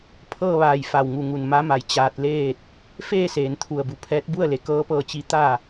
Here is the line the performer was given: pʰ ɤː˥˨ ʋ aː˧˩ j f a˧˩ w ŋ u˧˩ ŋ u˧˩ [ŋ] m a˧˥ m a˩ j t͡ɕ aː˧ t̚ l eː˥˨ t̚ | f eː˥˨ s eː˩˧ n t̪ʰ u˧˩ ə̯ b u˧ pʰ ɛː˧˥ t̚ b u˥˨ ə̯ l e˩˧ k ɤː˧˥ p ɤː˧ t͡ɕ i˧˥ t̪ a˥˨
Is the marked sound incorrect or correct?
incorrect